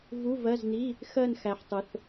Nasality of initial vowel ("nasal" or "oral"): oral